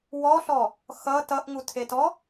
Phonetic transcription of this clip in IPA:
w ɔ ɬ ɔ | x ʌ t ʌ ʔ ŋ u tʰ e t ɔ

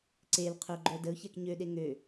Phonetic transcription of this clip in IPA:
ǀ e l qʰ ø ɡ͡ǃ œ d ə ʊ̯ ç ɛ k ɲ ø ɗ e ŋ ø

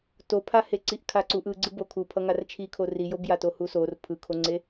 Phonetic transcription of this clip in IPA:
t o pʰ a h e ǀ i ʔ kʰ a ǀ u ʔ ɯ ɡ͡ǀ ɯ b o kʰ u pʰ ʌ ŋ a r t͡ʃʰ i kʰ o r i j o b j a t o h u s o r pʰ ɯ kʰ o ŋ͡ǀ e

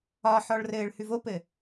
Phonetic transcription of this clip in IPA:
ɒ ħ ɔ ɭ r ɘː ɭ h ʉ v o p ɘ

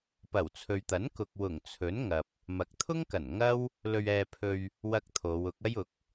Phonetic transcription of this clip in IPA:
p ɐ˨˩ w t͡sʰ ɵ˨ ɥ t̪ ɐ˨˥ n k ʊ˨ k̚ w ʊ˨˩ ŋ t͡sʰ ɵ˨˥ n ŋ ɐ˨ p̚ | m ɐ˨˥ k̚ t̪ʰ ʊ˥ ŋ k ɐ˨˩ n ŋ ɐ˥ w | l ɵ˧ ɥ ɛː˧ pʰ ɵ˧ ɥ | w ɐ˥ k̚ t̪ʰ o˨˧ w ʊ˨˥ k̚ ɐ˥ j ʊ˨˥ k̚

